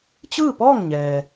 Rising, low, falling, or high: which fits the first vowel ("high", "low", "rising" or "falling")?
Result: falling